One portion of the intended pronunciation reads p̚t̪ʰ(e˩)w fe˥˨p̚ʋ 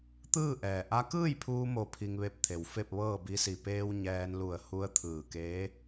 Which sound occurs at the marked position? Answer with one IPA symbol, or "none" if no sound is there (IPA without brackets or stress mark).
e˩